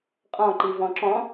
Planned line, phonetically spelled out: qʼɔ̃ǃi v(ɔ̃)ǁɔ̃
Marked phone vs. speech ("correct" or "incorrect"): correct